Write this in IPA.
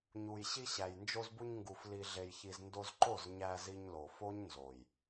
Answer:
ɲ u˨ j ɕ i˧ ɕ æ˨ j n d͡ʒ o˧ z b u˧ ɲ ŋ ɡ u˨ f l i˨ ɮ e˨ j ç i˨ z n d o˧ z ǃ o˦˨ z ɲ æ˧ z i˧ ɲ l o˨ f o˦ ɲ n z o˨ j

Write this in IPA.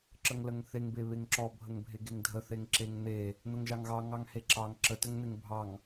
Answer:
ǁ ə ŋ l ə ŋ θ e ŋ b e β e ŋ ǁ ɔ bʱ ə ŋ bʱ e ɡ e ŋ dʱ ə θ e ŋ ǁ e ŋ n̪ e | n̪ ə ŋ ʒ ɑ ŋ ɣ ɑ ŋ ɑ ŋ h e ǁ ɑ ŋ ǁ ə t ə ŋ n̪ e ŋ bʱ ɑ ŋ

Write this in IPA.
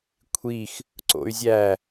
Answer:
kʷʰ i x | ǀ o̰ y̯ zʲ æ

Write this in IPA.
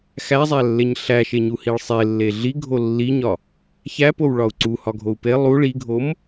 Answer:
x æ zˤ æ lː e ɲ ɬ æ ʃ e ɲ u h i ɭ sˤ e lː e ɮ i ɡʱ o lː i ɲ ɒ | ç æ p o w ɭ ɒ u̯ ǀ u h ɒ ɡʱ o u̯ p e lˠ u ɭ i ɡʱ o m

